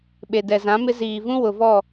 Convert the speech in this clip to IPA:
ɓ e˨ d ɛ˨ z ã˨˦ m ɪ˦ z iː˨ v ũ˦ w ʊ˨ v ɔ˦˨

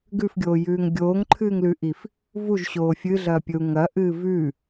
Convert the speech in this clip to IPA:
ɡ ʉ f ɡʲ oː j ʉː ŋ ɡʲ oː ŋ ǃʰ ɨː ŋ l ʉ ʔ i f | v u ʒ ɕ oː fʲ ɨ ɮ ɐː pʲ ɵ u̯ ŋ ɐ ʔ ɨː v ʉ

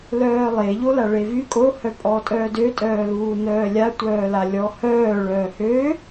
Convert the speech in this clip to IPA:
l œː lˠ e ʎ o l a ɭ e v y kʼ o h œ pʼ ɔː tʼ œː d ø tʼ œː l uː n œː lʲ a tʷ œː l a lʲ ɔ h œː ɭ œː h ø

